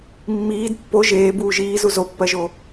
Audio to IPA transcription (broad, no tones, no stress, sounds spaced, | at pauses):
mː iː d pː o ʒ eː b uː ʒ iː z u z o pː ɜ ʒ o